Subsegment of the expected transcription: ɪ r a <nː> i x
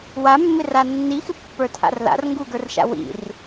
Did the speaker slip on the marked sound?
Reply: no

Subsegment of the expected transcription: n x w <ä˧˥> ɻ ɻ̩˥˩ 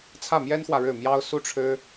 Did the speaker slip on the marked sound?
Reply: yes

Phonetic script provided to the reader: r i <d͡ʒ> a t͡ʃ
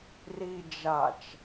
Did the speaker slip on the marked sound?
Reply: no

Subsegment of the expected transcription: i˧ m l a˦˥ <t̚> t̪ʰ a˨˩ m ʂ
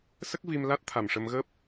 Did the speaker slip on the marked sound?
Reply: no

